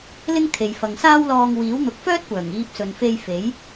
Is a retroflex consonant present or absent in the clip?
absent